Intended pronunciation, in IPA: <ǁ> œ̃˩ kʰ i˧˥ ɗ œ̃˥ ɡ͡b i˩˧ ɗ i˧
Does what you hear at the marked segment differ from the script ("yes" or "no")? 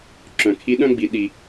no